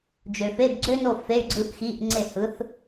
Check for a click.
present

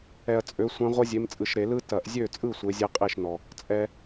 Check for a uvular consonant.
present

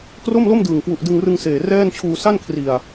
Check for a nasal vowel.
absent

